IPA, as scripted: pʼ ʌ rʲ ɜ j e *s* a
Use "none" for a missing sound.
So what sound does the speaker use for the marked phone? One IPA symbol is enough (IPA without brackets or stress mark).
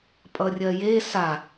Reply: s